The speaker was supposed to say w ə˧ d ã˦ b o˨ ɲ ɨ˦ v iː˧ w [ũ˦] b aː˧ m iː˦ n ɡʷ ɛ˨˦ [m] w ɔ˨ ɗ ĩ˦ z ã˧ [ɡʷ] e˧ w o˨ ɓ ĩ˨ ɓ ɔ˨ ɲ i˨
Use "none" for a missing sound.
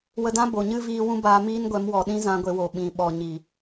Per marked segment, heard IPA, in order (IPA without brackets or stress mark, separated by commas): ũ˦, m, ɡʷ